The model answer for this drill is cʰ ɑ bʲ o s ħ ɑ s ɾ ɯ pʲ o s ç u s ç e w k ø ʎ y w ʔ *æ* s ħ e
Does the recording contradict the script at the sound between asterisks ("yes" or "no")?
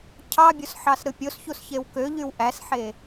no